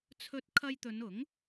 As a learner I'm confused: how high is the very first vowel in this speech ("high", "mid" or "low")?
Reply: mid